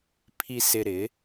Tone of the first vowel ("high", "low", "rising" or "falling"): low